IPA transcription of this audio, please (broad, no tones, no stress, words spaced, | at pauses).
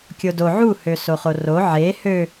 kʲodo ʕu høsoχoro ʕe hø